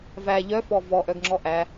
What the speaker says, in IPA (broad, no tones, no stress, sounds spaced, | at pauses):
v æ ʎ œ f ɔ v ɔ ʔ œ ɡ ŋ͡ǁ ɔ ʔ æ